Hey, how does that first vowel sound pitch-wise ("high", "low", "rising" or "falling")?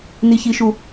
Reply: high